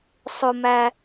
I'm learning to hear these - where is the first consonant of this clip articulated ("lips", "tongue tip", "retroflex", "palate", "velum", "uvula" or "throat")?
tongue tip